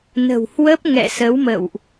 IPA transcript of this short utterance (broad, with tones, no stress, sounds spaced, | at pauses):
n ə̤˨˩ w h w ə˦˥ p̚ ŋ ɛ̰˧˨ s ə˨˦ w m ə̰˧˨ w ʔ